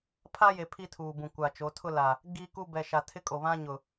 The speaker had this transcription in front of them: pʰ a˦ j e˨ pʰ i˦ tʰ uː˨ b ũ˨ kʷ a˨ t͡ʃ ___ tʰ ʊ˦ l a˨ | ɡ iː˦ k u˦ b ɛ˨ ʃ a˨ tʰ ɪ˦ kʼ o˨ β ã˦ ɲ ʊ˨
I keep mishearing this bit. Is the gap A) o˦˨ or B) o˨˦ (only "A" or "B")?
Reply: B